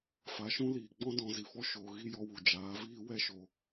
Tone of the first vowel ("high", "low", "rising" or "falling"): rising